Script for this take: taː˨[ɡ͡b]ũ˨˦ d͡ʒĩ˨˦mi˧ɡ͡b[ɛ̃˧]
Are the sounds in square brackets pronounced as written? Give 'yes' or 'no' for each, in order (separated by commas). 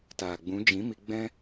yes, no